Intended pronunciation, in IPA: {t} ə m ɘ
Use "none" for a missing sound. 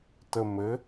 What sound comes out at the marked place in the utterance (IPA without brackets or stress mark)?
t